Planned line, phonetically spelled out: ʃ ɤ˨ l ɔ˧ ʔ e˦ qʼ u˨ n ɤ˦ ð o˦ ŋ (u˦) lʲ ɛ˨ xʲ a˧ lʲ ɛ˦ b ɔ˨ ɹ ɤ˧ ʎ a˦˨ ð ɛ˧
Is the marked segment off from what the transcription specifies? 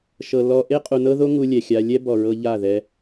no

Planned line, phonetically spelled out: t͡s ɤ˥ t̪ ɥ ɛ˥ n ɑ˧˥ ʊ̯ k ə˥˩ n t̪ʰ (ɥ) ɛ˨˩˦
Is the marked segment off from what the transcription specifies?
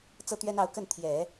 yes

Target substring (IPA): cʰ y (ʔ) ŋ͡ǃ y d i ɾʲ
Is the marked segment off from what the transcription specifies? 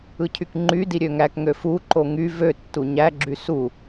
yes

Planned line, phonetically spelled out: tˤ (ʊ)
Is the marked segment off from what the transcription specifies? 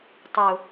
no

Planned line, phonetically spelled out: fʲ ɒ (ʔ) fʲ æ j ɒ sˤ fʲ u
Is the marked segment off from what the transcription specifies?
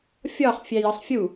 yes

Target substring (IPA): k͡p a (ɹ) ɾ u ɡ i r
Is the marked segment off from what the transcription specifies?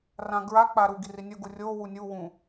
yes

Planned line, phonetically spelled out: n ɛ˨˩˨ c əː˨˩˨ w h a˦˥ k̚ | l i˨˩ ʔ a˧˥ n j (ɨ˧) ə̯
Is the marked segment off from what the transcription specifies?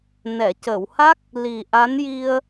yes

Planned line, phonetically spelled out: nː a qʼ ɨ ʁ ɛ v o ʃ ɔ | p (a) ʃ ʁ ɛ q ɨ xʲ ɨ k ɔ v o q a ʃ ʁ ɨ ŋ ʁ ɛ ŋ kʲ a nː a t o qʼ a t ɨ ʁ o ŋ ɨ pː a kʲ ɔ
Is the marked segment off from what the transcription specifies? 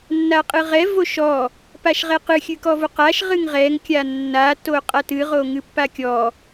no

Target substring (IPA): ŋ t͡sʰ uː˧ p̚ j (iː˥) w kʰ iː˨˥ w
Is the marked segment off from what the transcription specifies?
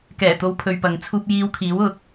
yes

